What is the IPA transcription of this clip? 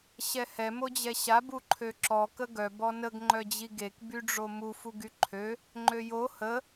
ɕ ɛ h ɛ m o d͡ʑ ɛ ɕ a b u ǃʰ ø ǁ ɔ k ə ɡ œ b ɔ n ə ɡ ŋ͡ǃ œ d͡ʑ i ɡ e k b y ɖ͡ʐ o m u f u ɡ y ǃʰ ø | ŋ͡ǃ ø j o h ə

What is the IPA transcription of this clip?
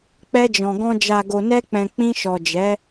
k͡p ɛ˧ d͡ʒ ɔ̃˨ ɡ ɔ̃˧ d͡ʒ a˨ ɡ o˨ n ɛ˧ k͡p ɛ̃˨ k͡p ĩ˧ ʃ ɔ˨ d͡ʒ ɛ˨˦

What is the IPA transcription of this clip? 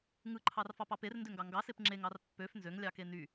ŋ ɯ ǃʰ ɑ r f ɑ p ɑ p e r n d ø ŋ ɡ ɑ ŋ ɡ ɑ s e p ŋ͡ǁ e ŋ ɑ r pː ø f n z ø ŋ lʲ ɑ k e n y

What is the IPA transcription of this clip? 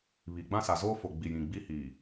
β i˨ ɡ͡b ã˦ s a˨ z oː˦ f o˨ ɡ͡b i˨ j ĩ˨ ɡ͡b i˦ h iː˨

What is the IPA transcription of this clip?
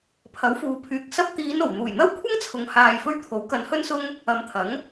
pʰ ɐ˨˥ w f uː˨˧ pʰ yː˨ k̚ s ɐ˧ p̚ t̪ iː˨˧ n o˨˩ w n̪ uː˨˩ j n̪ ɐ˥ w kʷʰ ɐ˥ ŋ t͡sʰ ʊ˨ ŋ h aː˧ j f ɵ˥ ɥ t̪ʰ o˨˥ w k ɐ˨˧ n h ɵ˥ n s ʊ˥ ŋ | ɐ˨˧ m t̪ʰ ɐ˨˥ ŋ

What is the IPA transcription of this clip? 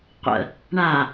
qʷ ə̰ | ɳ a

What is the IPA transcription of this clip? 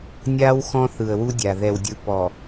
nʲ a˦ w x ɔ̃˦ θ ɯ˨ ə̯ w u˦ dʲ a˨ ð ɛ˨ w dʲ ɯ˨ p ɔ˨

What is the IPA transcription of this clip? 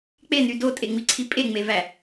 k͡p e n y d o tʼ e ŋ͡m i ǀʰ i pʼ e ŋ͡m e v æ

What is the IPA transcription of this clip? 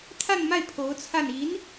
t̪ʰ a˥˧ n m a˥˩ ɪ̯ pʰ o˧˥ ʊ̯ t͡sʰ a˥˩ n i˧˥ n

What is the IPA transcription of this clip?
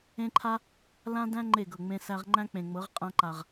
ẽ˦ ǃʰ a˦ | l ã˦ d æ̃˦ ŋ͡ǃ e˦˨ ɡ ɤ˨ ŋ͡m ẽ˧ s æ˧ ʁ ŋ͡ǃ æ̃˦ k͡p ẽ˨ ŋ͡m ɤ˨˦ ʁ qʼ ã˧ ǃ a˨ ʁ

